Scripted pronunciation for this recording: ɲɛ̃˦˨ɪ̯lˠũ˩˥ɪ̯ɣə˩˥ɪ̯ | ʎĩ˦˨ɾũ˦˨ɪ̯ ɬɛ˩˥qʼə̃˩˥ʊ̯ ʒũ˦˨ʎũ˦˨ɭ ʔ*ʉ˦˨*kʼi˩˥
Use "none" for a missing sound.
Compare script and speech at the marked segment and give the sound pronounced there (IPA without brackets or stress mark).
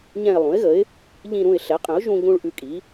ʉ˦˨